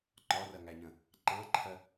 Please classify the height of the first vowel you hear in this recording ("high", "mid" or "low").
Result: low